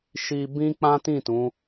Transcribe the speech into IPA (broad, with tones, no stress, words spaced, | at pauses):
ʃi˧bĩ˦ k͡pã˦tĩ˦˨ tũ˨˦